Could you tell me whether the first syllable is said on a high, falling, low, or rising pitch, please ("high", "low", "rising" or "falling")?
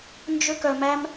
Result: high